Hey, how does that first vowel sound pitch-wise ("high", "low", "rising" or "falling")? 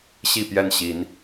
falling